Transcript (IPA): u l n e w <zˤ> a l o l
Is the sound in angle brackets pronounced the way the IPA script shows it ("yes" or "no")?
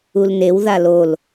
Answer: no